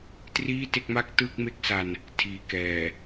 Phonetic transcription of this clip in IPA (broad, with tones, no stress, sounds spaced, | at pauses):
t r iː˥˩ t e˥˩ k̚ m a˥˩ k̚ t ɯː˥˩ k̚ m e˥˩ k̚ s a˧ n | tʰ iː˨˩ k ɛː˨˩